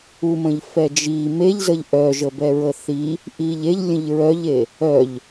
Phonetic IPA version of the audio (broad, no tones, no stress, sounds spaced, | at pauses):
u m ə̃ ʎ f ɛ d͡ʒ i m e ʎ z ə ʎ ʔ œ ʒ ə b ɛ ɹ ə θ i | ʔ i ʎ e ʎ lʲ ə̃ ʎ ɹ œ ʎ e | œ ʎ